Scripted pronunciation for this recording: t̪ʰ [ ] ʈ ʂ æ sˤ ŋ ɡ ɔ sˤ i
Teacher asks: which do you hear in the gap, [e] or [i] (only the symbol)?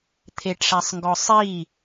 e